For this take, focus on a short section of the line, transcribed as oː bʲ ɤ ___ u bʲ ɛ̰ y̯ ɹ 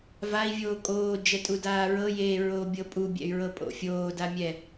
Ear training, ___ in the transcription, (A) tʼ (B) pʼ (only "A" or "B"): B